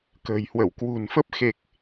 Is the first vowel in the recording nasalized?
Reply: no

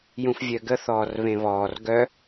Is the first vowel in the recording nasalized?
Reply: yes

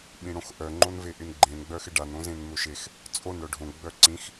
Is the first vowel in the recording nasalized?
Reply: yes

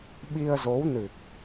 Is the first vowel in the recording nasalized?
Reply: no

